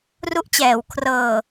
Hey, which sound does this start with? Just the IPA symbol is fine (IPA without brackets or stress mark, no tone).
r